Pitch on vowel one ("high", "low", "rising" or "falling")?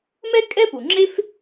high